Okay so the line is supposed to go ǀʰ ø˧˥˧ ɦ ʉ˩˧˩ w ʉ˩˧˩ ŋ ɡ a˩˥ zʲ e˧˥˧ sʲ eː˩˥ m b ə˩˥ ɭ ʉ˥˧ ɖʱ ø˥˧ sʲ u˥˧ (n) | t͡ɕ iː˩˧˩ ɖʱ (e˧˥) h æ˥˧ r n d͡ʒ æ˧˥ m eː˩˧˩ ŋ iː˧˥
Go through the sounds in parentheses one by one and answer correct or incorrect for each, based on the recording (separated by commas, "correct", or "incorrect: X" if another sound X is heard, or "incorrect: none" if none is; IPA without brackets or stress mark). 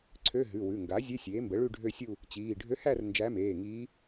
incorrect: none, incorrect: ø˧˥